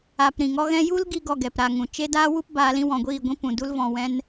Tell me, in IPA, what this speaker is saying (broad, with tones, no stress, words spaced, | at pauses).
a˨p ɾĩ˨ŋɔ˦ɣɛ̃˦ ju˧l ɡi˧ɡɔ˨ ɡɛ˨pɾa˨ŋũ˨ t͡ʃe˦daː˦ wu˦p baː˧lĩ˦wɔ̃˨ ɡʷiː˦˨ɡʷĩ˦ pũ˨du˦l vɔ̃˨wɛ̃˧n